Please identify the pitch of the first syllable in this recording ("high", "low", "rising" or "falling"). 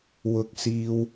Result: high